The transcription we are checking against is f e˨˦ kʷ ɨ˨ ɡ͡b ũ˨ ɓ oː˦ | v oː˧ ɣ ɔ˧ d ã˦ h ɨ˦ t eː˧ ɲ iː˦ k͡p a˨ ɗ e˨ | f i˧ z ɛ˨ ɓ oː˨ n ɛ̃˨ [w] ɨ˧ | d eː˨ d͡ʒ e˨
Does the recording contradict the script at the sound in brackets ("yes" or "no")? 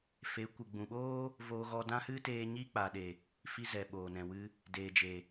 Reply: no